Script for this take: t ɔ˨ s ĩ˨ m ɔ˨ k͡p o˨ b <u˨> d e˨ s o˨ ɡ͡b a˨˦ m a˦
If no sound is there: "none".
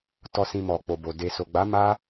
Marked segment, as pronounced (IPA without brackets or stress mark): o˨